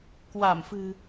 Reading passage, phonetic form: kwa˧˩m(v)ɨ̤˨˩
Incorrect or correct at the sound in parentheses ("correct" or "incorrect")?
incorrect